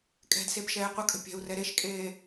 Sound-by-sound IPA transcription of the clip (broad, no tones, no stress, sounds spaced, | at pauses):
kʼ ɛ̤ d s e b ʃ ɛː qʷ ə kʼ ə̤ pʲ ɛ̤ u̯ r ɛ ɾ e ʃ kʼ eː